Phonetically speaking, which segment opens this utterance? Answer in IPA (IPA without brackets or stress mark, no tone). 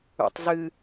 ṵ